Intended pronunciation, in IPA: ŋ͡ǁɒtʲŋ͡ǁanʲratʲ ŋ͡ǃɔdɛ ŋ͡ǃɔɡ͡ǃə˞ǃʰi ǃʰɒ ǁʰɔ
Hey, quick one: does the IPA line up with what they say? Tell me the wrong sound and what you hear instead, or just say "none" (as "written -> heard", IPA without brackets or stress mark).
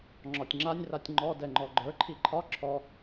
none